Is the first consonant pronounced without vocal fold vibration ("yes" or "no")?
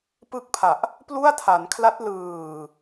yes